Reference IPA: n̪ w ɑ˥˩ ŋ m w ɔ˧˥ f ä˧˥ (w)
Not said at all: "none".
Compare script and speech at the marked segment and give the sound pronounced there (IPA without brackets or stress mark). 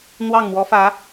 none